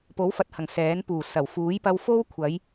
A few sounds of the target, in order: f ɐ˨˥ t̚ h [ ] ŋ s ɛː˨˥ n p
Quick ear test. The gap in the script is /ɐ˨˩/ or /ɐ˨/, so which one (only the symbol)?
ɐ˨˩